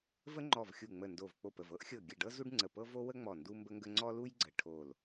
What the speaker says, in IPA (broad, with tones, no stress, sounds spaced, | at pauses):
v ə˥ ŋ͡ǃ ɔ˧˩ v xʲ u˧˩ ŋ͡m ə˧˩ n d o˧˩ v k͡p o˧˩ p ə˧˩ v ɤ˥ ʔ xʲ ɤ˧˩ ɡʲ ə˧˩ ɖ ɤ˥ z u˥ ɖ ŋ͡ǀ ə˧˩ p ɤ˥ v o˥ w ə˥ ŋ͡m ɔ˧˩ n d u˥ m b ə˥ ŋ ɡ ə˥ ŋ͡ǀ ɔ˥ l u˥ j ɡ͡ǀ ə˧˩ ʈʰ o˧˩ l